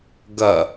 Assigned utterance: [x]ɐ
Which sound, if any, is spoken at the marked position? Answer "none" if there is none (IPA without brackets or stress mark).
ɡ